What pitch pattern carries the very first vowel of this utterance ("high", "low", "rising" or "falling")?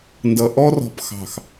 low